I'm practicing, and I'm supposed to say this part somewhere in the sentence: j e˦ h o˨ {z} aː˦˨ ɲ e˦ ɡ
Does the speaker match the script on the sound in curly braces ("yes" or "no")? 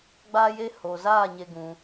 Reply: yes